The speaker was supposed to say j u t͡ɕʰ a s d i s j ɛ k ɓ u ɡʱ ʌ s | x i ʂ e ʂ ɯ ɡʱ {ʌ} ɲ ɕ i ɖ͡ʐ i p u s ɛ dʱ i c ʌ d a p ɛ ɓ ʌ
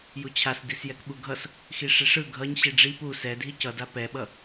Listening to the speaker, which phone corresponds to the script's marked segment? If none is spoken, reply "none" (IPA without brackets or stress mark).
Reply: ʌ